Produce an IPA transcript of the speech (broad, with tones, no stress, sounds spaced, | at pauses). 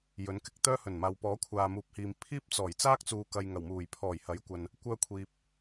j ɵ˨˥ n k ɪ˧ k̚ t̪ œː˥ h ɵ˨˩ n m aː˨ w p ɔː˨˥ kʷʰ aː˨ m uː˨ p̚ h iː˨ m pʰ iː˥ p̚ t͡s ɔː˨˩ j t͡s aː˥ k̚ t͡s uː˨ k ɐ˨ j ŋ ɐ˨˩ w m uː˨˩ j pʰ ɔː˨˩ j h ɐ˨˥ j kʷ ɐ˨ n | kʷ œː˥ kʷʰ iː˧ p̚